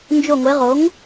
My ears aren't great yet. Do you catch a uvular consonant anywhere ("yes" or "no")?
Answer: yes